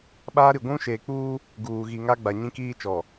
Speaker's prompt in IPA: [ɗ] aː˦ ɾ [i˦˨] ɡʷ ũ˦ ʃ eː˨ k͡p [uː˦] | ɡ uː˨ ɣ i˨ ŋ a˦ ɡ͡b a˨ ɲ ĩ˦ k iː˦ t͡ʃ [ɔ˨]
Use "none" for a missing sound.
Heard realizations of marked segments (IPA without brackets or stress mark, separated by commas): ɓ, i˨, uː˦, ɔ˨